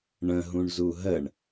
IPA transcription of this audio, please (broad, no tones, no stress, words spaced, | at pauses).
ɳə̃ɦũɳ zuɦəɳ